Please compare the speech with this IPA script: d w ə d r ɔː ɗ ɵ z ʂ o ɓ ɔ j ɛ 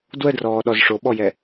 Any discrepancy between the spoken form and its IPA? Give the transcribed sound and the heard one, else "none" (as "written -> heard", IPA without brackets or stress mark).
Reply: ɵ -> ɔ